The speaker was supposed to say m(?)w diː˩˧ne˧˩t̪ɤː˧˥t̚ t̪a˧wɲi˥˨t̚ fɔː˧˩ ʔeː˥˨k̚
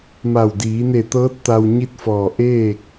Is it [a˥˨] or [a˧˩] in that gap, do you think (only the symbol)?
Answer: a˧˩